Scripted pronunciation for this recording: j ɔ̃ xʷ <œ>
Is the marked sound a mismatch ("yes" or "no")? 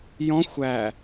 yes